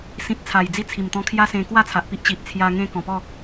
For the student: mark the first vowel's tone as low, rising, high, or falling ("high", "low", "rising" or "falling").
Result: low